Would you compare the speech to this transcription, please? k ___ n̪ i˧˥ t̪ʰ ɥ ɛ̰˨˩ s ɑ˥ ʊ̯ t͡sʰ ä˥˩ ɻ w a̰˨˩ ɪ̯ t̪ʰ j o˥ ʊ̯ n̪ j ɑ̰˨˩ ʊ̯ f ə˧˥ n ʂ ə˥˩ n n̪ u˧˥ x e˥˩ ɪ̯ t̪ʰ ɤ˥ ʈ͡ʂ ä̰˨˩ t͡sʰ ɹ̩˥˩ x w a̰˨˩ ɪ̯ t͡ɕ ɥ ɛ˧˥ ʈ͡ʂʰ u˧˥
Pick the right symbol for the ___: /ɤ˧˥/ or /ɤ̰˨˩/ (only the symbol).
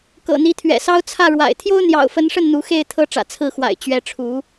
ɤ̰˨˩